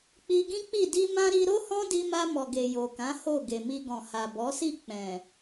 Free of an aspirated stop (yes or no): yes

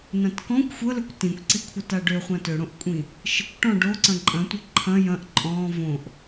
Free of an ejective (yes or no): no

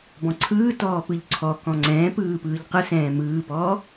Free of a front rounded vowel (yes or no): yes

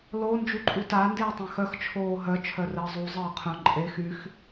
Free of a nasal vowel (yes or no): no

